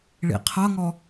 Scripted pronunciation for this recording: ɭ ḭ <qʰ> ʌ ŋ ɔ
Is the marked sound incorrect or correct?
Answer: correct